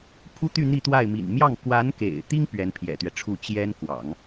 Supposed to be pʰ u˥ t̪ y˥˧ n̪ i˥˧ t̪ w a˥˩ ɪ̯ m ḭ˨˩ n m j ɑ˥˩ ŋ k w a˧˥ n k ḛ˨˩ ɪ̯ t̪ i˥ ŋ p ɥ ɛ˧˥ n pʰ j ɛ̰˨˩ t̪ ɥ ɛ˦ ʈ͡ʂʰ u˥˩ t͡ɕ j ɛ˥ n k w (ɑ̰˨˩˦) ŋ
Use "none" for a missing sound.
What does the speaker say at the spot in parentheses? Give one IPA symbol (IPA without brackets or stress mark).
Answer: ɑ̰˨˩˦